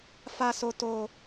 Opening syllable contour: high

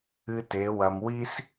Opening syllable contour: high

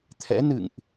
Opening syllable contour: rising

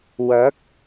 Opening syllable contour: rising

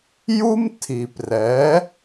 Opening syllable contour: high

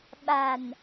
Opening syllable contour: low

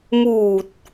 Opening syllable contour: low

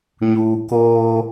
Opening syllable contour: low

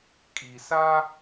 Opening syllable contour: low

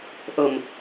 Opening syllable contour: low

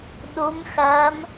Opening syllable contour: rising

